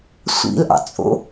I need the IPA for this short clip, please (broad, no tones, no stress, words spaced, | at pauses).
sʷḭlʔɑ̰t͡sʼo̰